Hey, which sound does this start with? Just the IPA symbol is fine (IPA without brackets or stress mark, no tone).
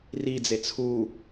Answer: r